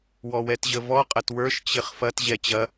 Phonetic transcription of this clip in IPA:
wɔwɛtʑəvɔ qʼɐtwə˞ʃ t͡ɕɪχfɐt ʑɛt͡ɕɐ

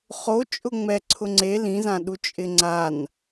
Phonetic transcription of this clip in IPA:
χo t͡ʃʼʊŋ͡mɛ ǀʰʊŋ͡ǀe lĩzãɗu t͡ʃʼɪŋ͡ǀan

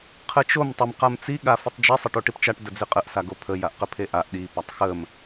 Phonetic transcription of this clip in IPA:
qʰət͡ʃom tˤəm qamt͡si ɠafɪtˤd͡ʒi sˤɪʈoʈipt͡ʃaʈ dəd͡zɪqʼəʔ saɡopʰə jaʔqəpʰeʔaʔ ɗi patˤxəm

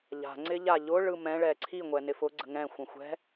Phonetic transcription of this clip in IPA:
ʎa̤ ŋ͡ǀɪʎaʎʊ ɭɯmɛ̃ ɭɛǀʰi ŋʷɛnɪfʊ ɡ͡ǀə̤ŋɛ̃ xʷə̃xʷɛ̤

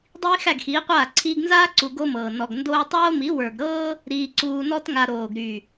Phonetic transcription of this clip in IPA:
dˤiː˦ xæ˦˨ɡxiː˨˦qʷaː˦˨ ǀʰiː˧ɡnzaː˦ ǀu˧ɡo˦mɤː˨ nɔ˨ɡ ndoː˦ tˤoː˦mi˨˦ wə˞˨ɡɾɤː˦ | ɾiː˧ǀuː˧nɔ˦tŋa˧ ɾoː˨ɡɾy˨

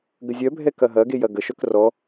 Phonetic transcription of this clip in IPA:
ɡəzʲœbʱɛ kɐɦɐɡej ɐɡəʃœk rɔ

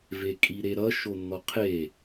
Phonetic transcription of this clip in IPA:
vekʼiɾeɾʌ ʃonːɔqʰe

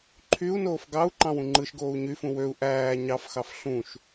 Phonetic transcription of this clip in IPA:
ǃʰyu̯noːf ɡɑu̯ ǃɑ̃wũŋ͡ǃɯʃɡoːu̯ ɲyfũ wøu̯ ʔæː ɲɑfxɑf ɬũʃ

